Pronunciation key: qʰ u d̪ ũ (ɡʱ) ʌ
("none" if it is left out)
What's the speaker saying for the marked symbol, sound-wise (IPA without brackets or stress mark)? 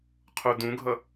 ɡʱ